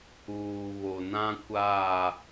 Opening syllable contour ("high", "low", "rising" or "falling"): low